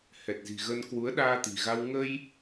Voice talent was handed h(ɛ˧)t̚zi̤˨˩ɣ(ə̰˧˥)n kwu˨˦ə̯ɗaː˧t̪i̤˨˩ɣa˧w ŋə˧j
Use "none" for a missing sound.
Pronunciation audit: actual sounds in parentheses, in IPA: ɛ˨˩, ə˧

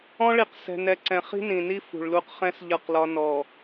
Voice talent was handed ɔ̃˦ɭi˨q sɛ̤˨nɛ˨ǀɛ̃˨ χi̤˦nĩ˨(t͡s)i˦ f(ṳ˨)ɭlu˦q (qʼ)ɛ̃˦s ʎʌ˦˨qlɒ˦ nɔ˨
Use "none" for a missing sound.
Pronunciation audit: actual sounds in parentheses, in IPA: n, ṳ˨, χ

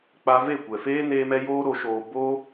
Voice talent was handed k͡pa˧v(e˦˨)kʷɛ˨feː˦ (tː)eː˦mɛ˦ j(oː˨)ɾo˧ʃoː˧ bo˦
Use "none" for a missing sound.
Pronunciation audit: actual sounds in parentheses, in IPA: e˦˨, n, oː˦

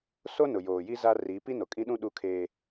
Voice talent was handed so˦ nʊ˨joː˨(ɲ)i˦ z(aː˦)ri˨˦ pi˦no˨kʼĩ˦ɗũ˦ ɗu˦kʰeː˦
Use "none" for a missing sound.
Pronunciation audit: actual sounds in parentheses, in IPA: j, a˦

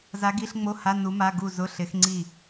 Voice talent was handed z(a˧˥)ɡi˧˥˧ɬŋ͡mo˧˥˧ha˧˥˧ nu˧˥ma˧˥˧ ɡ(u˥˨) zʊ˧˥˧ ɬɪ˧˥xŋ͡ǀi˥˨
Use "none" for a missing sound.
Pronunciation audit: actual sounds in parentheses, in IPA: a˧˥, u˥˨

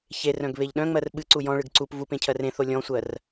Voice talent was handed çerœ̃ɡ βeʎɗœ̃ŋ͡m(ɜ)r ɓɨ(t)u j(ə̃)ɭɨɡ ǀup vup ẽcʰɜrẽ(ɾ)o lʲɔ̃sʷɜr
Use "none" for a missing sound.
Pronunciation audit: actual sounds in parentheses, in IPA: ɜ, ǀ, ɔ̃, θ

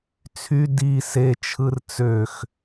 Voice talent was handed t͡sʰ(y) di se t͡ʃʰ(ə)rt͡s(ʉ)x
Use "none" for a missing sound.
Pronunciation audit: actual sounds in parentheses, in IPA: y, ɯ, ø

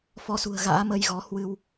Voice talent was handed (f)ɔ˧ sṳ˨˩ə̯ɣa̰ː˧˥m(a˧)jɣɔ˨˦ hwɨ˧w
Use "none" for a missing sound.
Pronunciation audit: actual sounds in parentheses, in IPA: f, ə˧

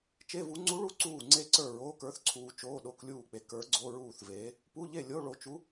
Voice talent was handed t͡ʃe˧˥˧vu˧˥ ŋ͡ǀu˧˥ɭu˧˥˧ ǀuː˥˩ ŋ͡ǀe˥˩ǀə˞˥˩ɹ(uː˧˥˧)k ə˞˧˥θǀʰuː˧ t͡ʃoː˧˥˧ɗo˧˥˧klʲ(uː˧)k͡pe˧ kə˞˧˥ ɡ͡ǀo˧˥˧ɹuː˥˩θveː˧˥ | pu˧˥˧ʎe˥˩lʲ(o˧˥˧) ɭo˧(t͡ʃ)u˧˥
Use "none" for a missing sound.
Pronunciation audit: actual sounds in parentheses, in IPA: oː˧˥˧, uː˥˩, o˧˥˧, t͡ʃ

